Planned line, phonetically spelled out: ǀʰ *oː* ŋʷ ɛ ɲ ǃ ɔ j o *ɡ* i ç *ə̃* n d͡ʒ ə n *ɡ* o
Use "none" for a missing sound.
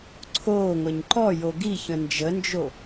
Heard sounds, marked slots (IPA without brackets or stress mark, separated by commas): oː, ɡ, ə̃, d͡ʒ